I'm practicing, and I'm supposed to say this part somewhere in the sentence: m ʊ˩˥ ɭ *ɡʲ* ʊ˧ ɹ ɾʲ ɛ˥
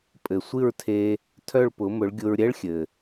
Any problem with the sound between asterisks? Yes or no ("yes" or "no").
no